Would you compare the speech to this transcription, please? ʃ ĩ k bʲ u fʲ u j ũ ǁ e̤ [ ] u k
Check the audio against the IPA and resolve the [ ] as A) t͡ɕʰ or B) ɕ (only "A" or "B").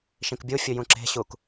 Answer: B